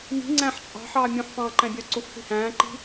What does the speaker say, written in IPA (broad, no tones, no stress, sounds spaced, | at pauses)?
m i̤ ŋ͡ǀ æ̃ ħ t͡ʃʼ ɑ̤ ħ ɑː mʲ ũ ħ f ɑ̃ː ǃ æ̃ bʲ œ ǀ u f θ i̤ h æ̃ː ǃ i̤